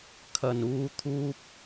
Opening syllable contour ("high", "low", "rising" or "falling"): low